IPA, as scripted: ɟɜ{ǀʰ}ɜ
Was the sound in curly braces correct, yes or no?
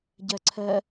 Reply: yes